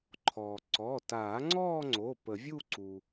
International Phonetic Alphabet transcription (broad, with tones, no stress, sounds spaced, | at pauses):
ǃʰ ɔː˩ ǀ ɔ˩˧˩ t aː˨˩˦ ŋ͡ǀ ɔː˥˧ ŋ͡ǀ o˩˧˩ p ə˨˩˦ vʲ u˥˧ ǀ u˩